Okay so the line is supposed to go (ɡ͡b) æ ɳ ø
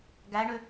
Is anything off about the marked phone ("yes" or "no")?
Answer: yes